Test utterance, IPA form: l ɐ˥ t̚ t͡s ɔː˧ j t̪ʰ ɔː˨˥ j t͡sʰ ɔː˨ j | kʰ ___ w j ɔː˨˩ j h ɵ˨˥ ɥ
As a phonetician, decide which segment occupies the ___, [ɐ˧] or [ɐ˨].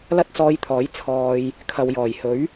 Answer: ɐ˨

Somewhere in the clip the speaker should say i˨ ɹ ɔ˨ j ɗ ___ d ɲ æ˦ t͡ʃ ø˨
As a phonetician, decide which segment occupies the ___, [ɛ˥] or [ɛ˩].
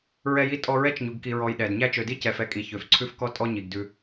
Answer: ɛ˩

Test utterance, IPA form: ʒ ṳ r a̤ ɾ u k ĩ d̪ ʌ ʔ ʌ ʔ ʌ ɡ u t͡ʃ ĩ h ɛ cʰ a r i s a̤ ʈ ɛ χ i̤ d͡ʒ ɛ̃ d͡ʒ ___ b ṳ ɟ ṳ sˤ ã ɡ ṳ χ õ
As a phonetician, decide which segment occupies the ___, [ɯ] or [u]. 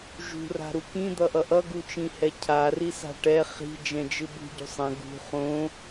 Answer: ɯ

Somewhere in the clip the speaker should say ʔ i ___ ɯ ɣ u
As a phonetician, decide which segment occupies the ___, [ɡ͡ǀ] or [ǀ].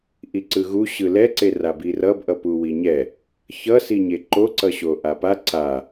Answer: ǀ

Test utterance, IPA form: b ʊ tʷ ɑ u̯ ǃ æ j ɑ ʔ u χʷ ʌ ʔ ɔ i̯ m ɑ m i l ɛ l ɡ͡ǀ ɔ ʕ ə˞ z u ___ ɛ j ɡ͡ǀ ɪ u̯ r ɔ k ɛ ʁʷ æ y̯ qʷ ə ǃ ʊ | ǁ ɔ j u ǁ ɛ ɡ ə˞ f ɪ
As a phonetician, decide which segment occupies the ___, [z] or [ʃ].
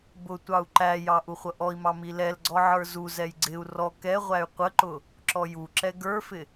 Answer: z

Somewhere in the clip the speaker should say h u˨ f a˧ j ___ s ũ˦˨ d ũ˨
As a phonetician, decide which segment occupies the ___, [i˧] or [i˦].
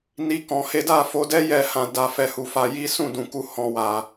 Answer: i˦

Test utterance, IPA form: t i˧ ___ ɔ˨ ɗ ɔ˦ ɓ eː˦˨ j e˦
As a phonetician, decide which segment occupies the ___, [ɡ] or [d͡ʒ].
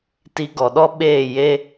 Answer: ɡ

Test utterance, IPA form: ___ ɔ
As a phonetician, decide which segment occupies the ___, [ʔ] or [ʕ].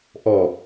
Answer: ʔ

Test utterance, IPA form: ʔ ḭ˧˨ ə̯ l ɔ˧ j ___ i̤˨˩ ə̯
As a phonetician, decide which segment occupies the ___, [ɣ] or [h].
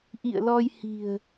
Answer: h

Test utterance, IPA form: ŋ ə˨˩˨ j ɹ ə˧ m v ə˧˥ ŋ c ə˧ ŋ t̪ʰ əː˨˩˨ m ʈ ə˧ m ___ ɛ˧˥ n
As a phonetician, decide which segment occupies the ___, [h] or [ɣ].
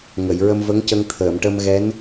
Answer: ɣ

